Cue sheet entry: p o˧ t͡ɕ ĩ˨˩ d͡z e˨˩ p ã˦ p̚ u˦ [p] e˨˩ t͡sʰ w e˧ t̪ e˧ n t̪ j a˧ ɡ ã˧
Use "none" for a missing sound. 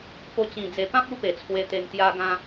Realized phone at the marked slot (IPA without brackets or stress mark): p